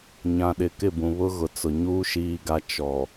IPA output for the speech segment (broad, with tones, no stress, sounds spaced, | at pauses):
ɲ ã˨ ɗ ɪ˨ k ɪ˦˨ b ũ˨ β ʊ˦ ɣ ʊ˨˦ t͡s ʊ˨ ɲ uː˦ ʃ iː˦ ɡ a˦ t͡ʃ ɔ˨